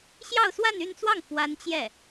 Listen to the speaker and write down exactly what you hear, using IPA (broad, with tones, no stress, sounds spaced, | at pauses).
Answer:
ɕ j ɑ˥˧ ʊ̯ s w a˥˧ n y˥˧ n t͡s w ɑ˥˩ ŋ f w a˥ n t͡ɕ j ɛ˥˩